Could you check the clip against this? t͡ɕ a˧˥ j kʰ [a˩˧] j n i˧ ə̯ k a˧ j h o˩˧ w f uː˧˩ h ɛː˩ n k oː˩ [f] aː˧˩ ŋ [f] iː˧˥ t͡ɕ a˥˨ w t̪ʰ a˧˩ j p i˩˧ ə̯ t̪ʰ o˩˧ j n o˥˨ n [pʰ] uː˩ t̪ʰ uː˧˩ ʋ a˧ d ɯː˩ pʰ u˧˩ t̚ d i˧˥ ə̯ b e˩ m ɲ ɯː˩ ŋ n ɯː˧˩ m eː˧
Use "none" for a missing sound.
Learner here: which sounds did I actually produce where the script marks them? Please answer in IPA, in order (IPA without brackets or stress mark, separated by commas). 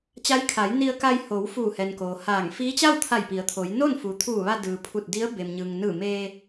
a˩˧, h, f, f